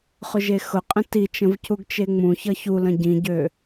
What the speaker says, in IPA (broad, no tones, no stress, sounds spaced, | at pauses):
χ ʊ ʒ e x ʊ qʼ ə̃ t i t͡ʃ ə̃ v c u ɡ t͡ʃ e ŋ͡m ũ ç ʌ ç u l ə̃ ɟ ĩ ɟ ø